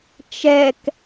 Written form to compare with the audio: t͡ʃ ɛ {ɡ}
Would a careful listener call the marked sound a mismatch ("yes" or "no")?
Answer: yes